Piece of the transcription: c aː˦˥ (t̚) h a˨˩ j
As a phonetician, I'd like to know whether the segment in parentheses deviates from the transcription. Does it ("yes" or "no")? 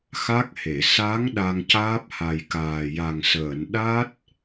yes